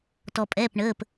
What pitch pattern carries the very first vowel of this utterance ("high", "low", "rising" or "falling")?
low